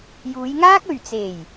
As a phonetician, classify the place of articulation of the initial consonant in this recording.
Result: palatal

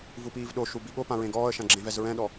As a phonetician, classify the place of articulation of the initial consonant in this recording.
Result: labial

